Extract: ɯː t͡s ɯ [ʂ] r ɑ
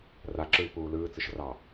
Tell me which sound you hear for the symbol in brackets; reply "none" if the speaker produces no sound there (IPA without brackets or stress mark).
ʃ